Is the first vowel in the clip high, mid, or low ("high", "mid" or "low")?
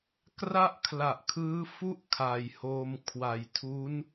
low